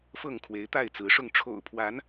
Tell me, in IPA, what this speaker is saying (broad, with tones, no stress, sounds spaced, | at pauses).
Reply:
f ɤ˥˨ ŋ kʰ w e˨˦ ɪ̯ t̪ a˥˨ ɪ̯ t͡s ɹ̩˨˦ ʂ ʊ˥˨ ŋ ʈ͡ʂʰ o̰˨˩ ʊ̯ pʰ w a˨˦ n